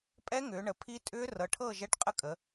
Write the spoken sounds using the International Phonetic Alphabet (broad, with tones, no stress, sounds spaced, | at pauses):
pʼ ɛ˦˥ ŋ ʏː˩˧ ɳ ə˩˧ pʰ i˦˥ tʼ ʏː˦˥ r ɤ˩˧ ʈʰ ɤː˦˨ ʒ ɛ˦˥ ʈ qʼ ə˦˥ kʼ ə˩˧